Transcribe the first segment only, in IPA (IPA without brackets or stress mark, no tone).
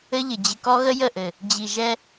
ɘ